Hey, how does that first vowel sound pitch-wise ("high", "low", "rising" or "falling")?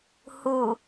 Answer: low